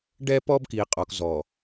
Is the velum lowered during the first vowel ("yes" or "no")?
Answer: no